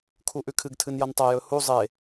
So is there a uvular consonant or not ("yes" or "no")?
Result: no